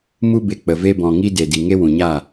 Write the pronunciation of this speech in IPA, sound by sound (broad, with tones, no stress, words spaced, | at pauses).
mu˧be˨ k͡pə˨ve˧bɔ̃˨ŋi˧ de˨di˨ ŋe˦wũ˨ɲa˦˨